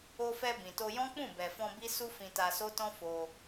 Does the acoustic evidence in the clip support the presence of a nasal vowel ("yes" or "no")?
yes